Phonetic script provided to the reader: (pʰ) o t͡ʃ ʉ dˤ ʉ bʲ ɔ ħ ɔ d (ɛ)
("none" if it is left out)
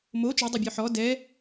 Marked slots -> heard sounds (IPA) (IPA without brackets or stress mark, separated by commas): m, ɛ